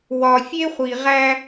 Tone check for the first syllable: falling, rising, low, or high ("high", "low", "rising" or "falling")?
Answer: low